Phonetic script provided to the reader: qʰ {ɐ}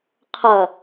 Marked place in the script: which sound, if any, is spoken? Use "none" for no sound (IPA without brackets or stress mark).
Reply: ɐ